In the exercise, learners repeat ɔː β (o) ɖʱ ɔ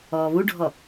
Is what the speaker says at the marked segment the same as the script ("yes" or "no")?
no